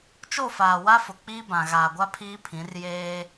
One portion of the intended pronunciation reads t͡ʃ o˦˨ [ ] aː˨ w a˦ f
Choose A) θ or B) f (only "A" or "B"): B